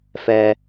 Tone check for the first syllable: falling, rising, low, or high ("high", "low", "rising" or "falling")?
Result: high